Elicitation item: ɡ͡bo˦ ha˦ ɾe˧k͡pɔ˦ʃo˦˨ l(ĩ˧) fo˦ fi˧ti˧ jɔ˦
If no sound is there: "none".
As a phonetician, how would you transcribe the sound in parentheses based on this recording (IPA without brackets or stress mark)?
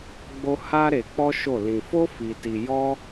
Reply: ĩ˧